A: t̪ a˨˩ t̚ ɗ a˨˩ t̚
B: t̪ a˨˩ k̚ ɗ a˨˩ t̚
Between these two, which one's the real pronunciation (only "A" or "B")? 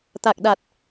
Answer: B